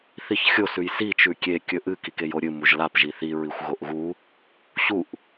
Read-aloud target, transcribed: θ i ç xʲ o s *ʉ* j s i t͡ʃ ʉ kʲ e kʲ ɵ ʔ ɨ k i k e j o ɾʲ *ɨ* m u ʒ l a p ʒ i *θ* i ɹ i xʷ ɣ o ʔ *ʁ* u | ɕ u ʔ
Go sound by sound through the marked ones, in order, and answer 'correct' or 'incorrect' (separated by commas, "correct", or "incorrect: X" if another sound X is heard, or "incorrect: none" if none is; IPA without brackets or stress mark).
correct, correct, correct, incorrect: ɣ